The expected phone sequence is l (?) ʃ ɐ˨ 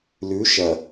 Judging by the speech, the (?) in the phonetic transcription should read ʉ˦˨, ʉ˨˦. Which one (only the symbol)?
ʉ˨˦